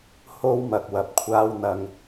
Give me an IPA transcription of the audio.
h o˧ w m ɐ˨ k̚ w ɐ˨ p̚ kʷʰ aː˧ w n̪ ɐ˧ ŋ

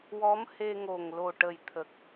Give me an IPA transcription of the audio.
w ɔ˧˥ m h e˧ ŋ o˨˩ ŋ l o˨˩ ʈ ə˨˩ j t̪ʰ ə˨˩ k̚

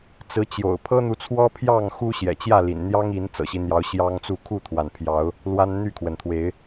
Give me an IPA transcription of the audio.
t͡s ɹ̩˨˦ t͡ɕ j o̰˨˩ ʊ̯ pʰ ɤ˦ n̪ u˨˦ t͡sʰ w ɔ˦ pʰ j ɑ˥˨ ŋ x u˦ ɕ j ɛ̰˨˩ t͡ɕ j ä˥˨ l ḭ˨˩ n n̪ j ɑ˦ ŋ i˨˦ n t͡s ɤ̰˨˩ ɕ i˦ n̪ j ɑ˨˦ ʊ̯ ɕ j ɑ˦ ŋ t͡s u˥˨ kʰ u˥˨ t̪ʰ w a˩ n pʰ j ɑ˨˦ ʊ̯ | l w a˦ n n̪ y˥˨ kʰ w ə˩ n t̪ʰ w e˨˦ ɪ̯

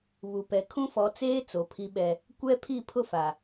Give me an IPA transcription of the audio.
β u˨ p ɛ˨ kʰ ũ˦ f ɔ˨˦ t͡s eː˦ t͡s o˨ pʰ i˦ ɓ ɛ˦ | kʷ ɛ˦ pʰ i˦˨ pʰ ʊ˦ f a˨

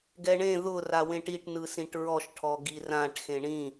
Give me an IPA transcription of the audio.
ɡ ɛ ɳ ẽ ð ʊ r a w ẽ ʈ i ʈ n ɯ s ĩ ʈ ɹ ɔ ʃ ʈʰ ɔ ɡ i r ã ʈ x ẽ ɳ ĩ

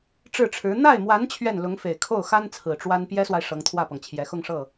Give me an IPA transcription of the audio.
ʈ͡ʂ ɻ̩˥˩ ʈ͡ʂʰ ɻ̩˧˥ n̪ a˥˩ ɪ̯ m w a˧˥ n t͡ɕʰ ɥ ɛ˥˩ n l ʊ˧˥ ŋ f e˨˩ ɪ̯ kʰ o˥˩ ʊ̯ x a˥ n t͡sʰ ɹ̩˨˩ ʈ͡ʂ w a˥ n p j ɛ˥ s w a˨ ɪ̯ ʂ ɤ˧˥ ŋ t̪ʰ w ä˥˩ p ɤ˩ ŋ t͡ɕʰ j ɛ˧˥ x ʊ˥˧ ŋ ʂ ɤ˥˩

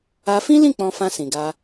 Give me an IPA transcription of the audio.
a˧ f ĩ˦ l ĩ˦˨ k͡p ɔ̃˧ f ã˧ s ĩ˨ ɡ a˧

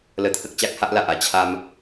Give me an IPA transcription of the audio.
l ə˧ t̪ʰ ə˦ k̚ t͡ɕ a˦ k̚ h a˦ ʔ l a˨ ʔ a˧ t͡ɕʰ a˦ m

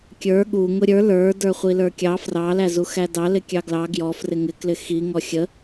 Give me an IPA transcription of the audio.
kʲ ə˞ ɠ u ŋ ʊ ɾʲ ə˞ l ə˞ d ə˞ χʷ i l ə˞ kʲ ɑ f r ɑ l æ z u x æ d ɑ l ɪ kʲ ɑ ɡ l ɑ ɡ j ɔ f r ɪ ŋ ɪ k l ɪ x i ŋ ɔ xʲ ə

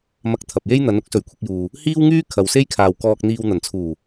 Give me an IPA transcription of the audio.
m ɐ˧ k̚ t̪ʰ ɐ˨ p̚ j e˥ j n̪ ɐ˨˥ n ʊ˥ k̚ s ɵ˨˩ ɥ kʷʰ ɪ˧ k̚ j uː˨ | h iː˥ w ŋ yː˥ kʰ ɐ˨ w s e˥ j kʰ aː˨ w k ɔː˨ k̚ n̪ iː˨ w n̪ ɐ˨˩ n t͡sʰ uː˨˩

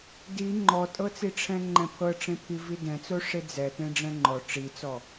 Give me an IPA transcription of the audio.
d i ŋ͡ǃ ɔ tʼ ɤ t͡s i ʈ͡ʂʰ ɛ̃ ŋ͡ǃ ɛ̃ pʰ ɤ ʈ͡ʂ ẽ pʰ i v i d ɛ̃ t͡s o ʂ e d͡z ɛ t ẽ ɖ͡ʐ ɛ̃ ŋ͡ǃ ɔ ʈ͡ʂ i t͡s ɔ

